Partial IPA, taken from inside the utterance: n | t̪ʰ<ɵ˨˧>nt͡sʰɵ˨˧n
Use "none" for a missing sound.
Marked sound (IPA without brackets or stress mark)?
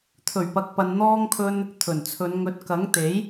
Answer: ɵ˨˩